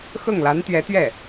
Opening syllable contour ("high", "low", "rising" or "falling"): falling